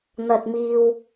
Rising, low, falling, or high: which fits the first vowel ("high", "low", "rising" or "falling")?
low